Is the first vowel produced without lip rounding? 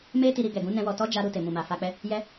yes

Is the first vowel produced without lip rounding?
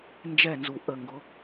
yes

